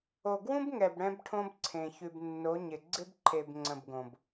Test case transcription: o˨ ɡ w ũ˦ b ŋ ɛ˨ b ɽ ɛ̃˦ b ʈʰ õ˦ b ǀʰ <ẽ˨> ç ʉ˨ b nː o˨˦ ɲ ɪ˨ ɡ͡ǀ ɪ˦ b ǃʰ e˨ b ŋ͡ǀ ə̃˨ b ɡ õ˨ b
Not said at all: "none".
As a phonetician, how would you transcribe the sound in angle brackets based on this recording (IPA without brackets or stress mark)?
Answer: ẽ˨